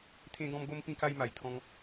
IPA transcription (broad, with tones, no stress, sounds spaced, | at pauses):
t̪ʰ ẽ˧ ɡ ɔ̃˧ m ɡ o˧ m p ĩ˧ k a˧ j m a˨˩ j t̪ʰ ɔ̃˧ ŋ